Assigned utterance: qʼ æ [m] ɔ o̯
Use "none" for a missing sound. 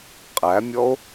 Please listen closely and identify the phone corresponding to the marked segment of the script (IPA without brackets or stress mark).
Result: mʲ